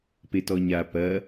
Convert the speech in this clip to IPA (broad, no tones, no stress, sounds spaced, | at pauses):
p e t ɔ ɲ a p ɐ